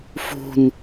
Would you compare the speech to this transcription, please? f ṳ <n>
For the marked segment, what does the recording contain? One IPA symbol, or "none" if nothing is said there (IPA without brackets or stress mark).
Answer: n